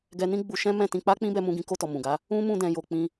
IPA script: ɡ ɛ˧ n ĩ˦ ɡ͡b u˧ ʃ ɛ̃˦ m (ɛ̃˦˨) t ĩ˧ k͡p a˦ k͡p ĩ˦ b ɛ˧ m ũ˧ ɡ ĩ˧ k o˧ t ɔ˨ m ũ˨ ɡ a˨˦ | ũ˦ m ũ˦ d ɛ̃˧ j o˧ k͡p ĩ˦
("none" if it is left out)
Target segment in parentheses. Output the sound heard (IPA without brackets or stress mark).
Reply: ɛ̃˦˨